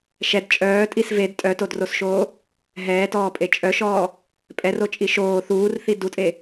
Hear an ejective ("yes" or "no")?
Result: yes